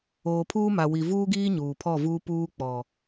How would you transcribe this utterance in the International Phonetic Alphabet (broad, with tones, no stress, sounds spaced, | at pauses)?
oː˨ pʰ uː˦ m a˨ w i˨ v uː˦ ɡ iː˦ ɲ uː˨ pʰ ɔ˦˨ v uː˦ p uː˦ k͡p ɔ˨